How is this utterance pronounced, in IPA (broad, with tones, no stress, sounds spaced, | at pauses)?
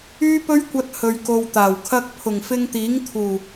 yː˥ p ɵ˥ ɥ kʷ ɐ˧ t̚ h ɵ˨ ɥ k o˨ w t̪ aː˨˩ w kʰ ɐ˧ k̚ pʰ ʊ˨˩ ŋ f ɪ˧ ŋ t̪ iː˨˥ ŋ t̪ʰ uː˨˩